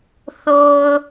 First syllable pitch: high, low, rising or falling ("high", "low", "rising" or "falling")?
low